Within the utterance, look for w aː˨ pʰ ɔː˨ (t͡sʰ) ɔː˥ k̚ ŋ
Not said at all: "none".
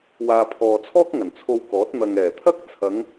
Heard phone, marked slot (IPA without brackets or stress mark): t͡sʰ